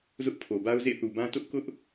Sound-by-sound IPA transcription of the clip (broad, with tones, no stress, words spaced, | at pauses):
zʊ˦ʔpʰo˨ ba˦ʊ̯zḛ˦˨θu˨bã˦ tʊ˦ʔkʊ˦ʔ